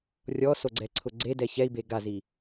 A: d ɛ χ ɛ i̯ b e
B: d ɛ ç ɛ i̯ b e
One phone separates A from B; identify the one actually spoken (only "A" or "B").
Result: B